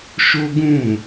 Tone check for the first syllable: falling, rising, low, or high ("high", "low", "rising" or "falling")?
high